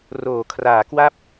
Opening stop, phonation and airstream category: aspirated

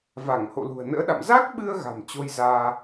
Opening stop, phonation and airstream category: implosive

